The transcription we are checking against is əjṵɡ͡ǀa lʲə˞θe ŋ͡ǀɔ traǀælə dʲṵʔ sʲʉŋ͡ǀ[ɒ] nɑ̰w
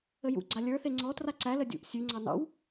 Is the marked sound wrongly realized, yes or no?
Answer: yes